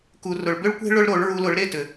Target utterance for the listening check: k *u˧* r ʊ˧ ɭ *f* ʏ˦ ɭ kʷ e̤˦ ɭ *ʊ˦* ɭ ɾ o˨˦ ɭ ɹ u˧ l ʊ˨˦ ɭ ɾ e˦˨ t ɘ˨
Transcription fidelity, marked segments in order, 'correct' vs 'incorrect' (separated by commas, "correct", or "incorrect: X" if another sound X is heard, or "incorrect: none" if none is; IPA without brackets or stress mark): correct, incorrect: b, correct